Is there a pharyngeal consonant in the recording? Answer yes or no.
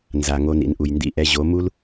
no